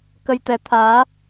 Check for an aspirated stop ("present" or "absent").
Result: present